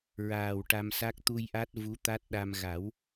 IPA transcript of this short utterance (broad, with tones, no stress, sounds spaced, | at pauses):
ɹ aː˨˩ w ʈ a˧ m s a˦˥ k̚ t̪ u˧ j ʔ a˦˥ t̚ v u˧˥ t̪ a˦˥ t̚ ɗ a˧ m ɣ a˨˩˦ w